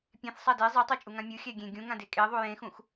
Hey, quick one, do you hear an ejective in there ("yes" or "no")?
yes